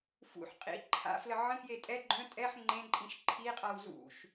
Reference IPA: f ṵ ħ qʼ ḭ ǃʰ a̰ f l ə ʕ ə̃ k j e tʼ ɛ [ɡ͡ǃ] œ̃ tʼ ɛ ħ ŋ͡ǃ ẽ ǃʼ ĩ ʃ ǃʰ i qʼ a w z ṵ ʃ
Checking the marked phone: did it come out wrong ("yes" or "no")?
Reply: no